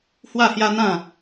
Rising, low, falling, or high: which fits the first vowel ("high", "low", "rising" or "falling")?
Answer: falling